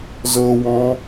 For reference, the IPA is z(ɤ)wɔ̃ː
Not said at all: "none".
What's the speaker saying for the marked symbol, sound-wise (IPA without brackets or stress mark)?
ɤ